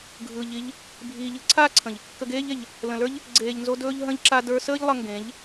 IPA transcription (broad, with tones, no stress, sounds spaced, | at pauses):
ɡʱ ɯː˨ ʎ i˧ ʎ | bʱ iː˨ ʎ ɯ˨˦ ǀʰ aː˦ ǀʰ ə̃˨ ʎ | k ə˧ ɡ eː˦ ʎ e˨ ʎ | l ə̃˨ l ə˞˦ ʎ | ɡ͡ǀ eː˨ ʎ n z o˧ d ɵː˧ ʎ ɦ ə̃˧ ʎ ǁ a˧ d ə˞˧ s əː˦ ʎ lˠ ʌ˧ ŋ ɡ ẽ˨˦ ʎ